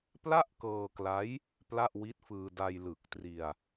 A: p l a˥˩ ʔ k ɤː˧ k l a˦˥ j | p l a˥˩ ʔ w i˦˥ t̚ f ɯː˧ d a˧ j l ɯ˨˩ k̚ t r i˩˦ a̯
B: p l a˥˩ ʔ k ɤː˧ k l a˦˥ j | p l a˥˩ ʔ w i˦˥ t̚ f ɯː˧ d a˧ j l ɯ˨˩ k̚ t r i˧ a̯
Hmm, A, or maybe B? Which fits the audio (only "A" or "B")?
B